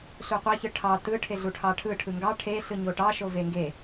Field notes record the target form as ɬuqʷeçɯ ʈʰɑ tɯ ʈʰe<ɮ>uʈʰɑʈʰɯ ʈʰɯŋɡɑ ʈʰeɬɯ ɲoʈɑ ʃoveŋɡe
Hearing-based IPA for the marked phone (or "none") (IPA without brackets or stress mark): ɮ